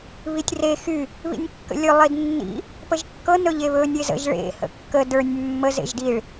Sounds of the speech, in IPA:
β i tʲ r e x y | β ḭ nʲ kː ə̰ lʲ ɵ lˠ i d nː ḭ | p ə ʒ kː ɤ n ɵ ʎ e β ɵ nʲ e z ə̰ ʒ ɭ ḛ h ə̰ kː ə d ə˞ nʲ mː ə z ḛ ʒ d i ɭ

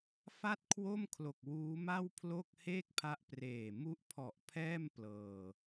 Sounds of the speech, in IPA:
f a˥˩ t̚ kʰ w o˥˩ m kʰ l o˨˩ k̚ w uː˦˥ m a˥˩ w pʰ l o˥˩ k̚ h eː˥˩ k̚ pʰ a˦˥ ʔ p r eː˨˩ m u˦˥ ʔ pʰ ɔ˨˩ ʔ pʰ ɛː˥˩ m p l ɤː˧

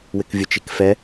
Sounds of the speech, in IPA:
w ɪ k vʲ ʊ t͡ʃ i k f ɛ

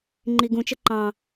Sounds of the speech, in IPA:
ŋ͡ǃ i ɡ ũ t͡ʃ ə ǃ ɑ̃

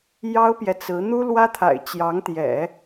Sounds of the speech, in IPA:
j ɑ˥ ʊ̯ p j ɛ˨ t͡s ɹ̩˧˥ n̪ u˥ l w ä˥ t̪ʰ a̰˨˩ ɪ̯ t͡ɕ j ɑ˧˥ ŋ t̪ j ɛ̰˨˩˦

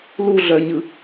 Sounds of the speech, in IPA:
l u ɮ œ ɲ ɯ

